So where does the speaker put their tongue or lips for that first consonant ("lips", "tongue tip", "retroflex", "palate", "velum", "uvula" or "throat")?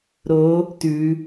tongue tip